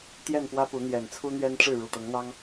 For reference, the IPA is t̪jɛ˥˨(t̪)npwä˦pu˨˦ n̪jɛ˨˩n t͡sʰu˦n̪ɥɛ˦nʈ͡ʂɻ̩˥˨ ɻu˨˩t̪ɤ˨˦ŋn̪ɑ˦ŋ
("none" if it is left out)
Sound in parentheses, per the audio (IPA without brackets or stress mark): none